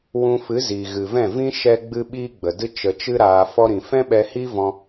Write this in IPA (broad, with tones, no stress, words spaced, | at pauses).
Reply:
wũ˧fɨ˨˦ zi˨ ɣɨ˨vɛ̃˦˨vĩ˦ ʃɛ˦ ɡ͡bɨ˦ɓiː˦ɡ͡bə˨dɨ˦ t͡ʃə˧t͡ʃɨ˦ɾaː˧ fɔ˧ɾĩ˨ fɛ̃˦ɓɛ˧hi˦vɔ̃˧